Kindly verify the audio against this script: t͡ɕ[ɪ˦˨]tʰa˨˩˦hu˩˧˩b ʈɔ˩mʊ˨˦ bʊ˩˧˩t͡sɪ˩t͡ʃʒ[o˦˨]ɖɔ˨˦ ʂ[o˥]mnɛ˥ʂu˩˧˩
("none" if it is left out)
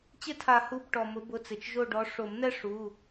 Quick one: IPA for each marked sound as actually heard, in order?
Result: ɪ˦˨, o˦˨, o˨˩˦

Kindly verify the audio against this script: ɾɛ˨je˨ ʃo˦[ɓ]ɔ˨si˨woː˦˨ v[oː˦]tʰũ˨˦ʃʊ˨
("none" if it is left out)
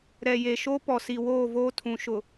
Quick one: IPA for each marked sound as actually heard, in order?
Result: p, oː˦

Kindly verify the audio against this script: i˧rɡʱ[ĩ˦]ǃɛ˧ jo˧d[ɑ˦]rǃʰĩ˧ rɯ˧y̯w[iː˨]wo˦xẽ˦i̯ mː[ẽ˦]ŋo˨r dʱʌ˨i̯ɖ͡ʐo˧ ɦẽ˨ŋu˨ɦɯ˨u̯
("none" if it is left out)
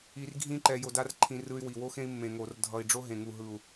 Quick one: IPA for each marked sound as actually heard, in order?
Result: ĩ˦, a˦, i˨, ẽ˨

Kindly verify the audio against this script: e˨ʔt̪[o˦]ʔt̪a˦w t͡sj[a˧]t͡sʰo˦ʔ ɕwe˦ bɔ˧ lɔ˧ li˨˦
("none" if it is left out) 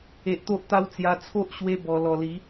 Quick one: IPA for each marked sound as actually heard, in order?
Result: o˦, a˧

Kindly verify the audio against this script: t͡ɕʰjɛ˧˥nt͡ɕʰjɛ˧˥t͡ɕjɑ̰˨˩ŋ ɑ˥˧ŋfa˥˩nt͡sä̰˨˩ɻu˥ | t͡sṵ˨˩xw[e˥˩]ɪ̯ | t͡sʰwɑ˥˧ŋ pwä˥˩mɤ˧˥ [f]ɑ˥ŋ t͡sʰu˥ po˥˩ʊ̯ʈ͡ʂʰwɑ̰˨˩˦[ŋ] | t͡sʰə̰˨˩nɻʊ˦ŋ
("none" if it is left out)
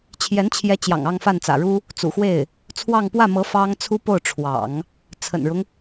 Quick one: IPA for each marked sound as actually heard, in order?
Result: e˥˩, f, ŋ

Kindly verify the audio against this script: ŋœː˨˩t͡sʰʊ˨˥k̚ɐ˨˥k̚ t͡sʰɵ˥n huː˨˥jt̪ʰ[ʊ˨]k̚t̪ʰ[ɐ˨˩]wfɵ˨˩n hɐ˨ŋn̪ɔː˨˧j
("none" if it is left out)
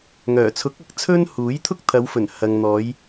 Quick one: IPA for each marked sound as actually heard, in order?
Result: ʊ˥, ɐ˨˧

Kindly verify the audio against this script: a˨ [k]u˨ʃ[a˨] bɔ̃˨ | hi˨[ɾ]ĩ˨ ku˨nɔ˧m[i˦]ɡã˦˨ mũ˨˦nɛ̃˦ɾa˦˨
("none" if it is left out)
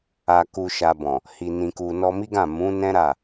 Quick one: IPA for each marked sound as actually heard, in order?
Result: k, a˨, n, i˦

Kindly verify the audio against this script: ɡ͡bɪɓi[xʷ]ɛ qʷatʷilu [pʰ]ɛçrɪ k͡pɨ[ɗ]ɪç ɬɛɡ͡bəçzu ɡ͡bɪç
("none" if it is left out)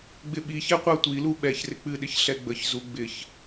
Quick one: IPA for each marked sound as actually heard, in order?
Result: ç, ɓ, ɗ

